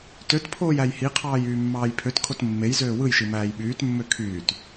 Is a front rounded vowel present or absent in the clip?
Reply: present